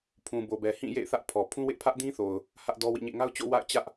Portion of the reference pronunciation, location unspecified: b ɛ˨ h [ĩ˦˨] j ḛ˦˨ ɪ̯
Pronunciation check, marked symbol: correct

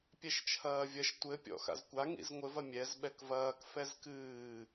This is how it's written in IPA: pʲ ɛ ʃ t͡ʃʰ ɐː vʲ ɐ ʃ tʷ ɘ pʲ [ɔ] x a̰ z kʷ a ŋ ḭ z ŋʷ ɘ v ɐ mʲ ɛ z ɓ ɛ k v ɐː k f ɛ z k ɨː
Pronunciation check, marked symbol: incorrect: ɔ̰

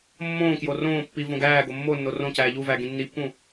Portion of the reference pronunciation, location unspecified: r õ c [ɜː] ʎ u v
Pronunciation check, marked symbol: incorrect: æː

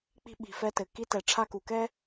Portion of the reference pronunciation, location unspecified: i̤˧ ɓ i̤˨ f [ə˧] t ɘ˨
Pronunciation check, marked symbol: incorrect: ɛ˧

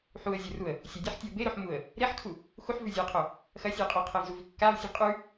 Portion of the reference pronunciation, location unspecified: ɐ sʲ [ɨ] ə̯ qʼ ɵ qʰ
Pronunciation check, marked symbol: correct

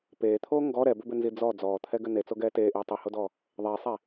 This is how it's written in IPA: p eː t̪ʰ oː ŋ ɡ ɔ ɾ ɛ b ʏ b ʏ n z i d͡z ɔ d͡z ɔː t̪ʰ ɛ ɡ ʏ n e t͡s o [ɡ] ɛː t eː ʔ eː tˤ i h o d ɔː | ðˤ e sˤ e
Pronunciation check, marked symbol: correct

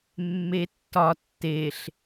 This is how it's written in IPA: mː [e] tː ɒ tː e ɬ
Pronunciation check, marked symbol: correct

